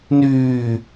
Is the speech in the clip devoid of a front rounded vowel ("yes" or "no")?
no